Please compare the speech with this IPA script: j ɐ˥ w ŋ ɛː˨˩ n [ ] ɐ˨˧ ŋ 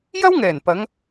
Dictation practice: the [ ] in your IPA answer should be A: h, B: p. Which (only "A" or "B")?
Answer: B